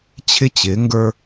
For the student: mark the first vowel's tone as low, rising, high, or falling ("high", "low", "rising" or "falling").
high